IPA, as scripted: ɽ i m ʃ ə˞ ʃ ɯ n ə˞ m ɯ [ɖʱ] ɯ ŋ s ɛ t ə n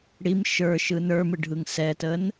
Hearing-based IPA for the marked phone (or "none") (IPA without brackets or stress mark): ɖʱ